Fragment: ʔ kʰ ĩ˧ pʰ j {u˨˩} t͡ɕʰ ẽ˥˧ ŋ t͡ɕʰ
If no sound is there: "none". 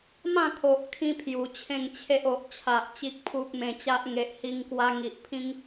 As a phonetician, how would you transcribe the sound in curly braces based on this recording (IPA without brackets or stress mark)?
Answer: u˨˩